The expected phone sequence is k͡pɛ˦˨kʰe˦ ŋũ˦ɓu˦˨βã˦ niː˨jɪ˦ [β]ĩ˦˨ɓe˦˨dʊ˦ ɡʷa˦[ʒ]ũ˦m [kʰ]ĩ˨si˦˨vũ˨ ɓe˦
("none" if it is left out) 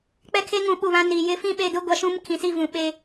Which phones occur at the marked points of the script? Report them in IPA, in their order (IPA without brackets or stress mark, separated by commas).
f, ʃ, kʰ